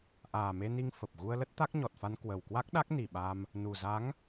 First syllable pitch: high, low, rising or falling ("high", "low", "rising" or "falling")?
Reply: low